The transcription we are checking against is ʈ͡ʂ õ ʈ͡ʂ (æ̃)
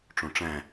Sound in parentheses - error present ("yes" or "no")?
no